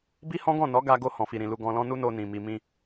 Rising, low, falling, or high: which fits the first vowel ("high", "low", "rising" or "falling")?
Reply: high